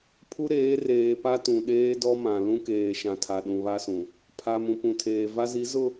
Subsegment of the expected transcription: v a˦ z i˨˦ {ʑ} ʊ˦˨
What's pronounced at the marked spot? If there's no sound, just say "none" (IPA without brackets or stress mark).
z